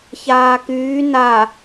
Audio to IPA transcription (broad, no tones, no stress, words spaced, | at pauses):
çaːkyː na